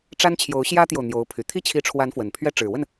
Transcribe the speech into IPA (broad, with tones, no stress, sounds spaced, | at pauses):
ʈ͡ʂ a˥ n t͡ɕʰ j o˧˥ ʊ̯ ɕ j ä˥ t̪ j o˨ ʊ̯ n̪ j o˧˥ ʊ̯ pʰ y˨˩ t̪ʰ i˥˩ t͡ɕʰ i˧˥ ʈ͡ʂʰ w a˧˥ n f w ə˨˩ n pʰ ɥ ɛ˥ ʈ͡ʂ ɻ̩˨˩ w ə˥˩ n